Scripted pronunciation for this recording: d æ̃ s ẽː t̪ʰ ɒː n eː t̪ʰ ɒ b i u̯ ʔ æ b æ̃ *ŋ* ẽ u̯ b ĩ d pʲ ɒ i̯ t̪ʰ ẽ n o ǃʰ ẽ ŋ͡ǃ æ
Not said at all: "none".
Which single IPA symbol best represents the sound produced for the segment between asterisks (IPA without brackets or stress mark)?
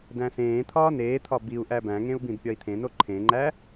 ŋ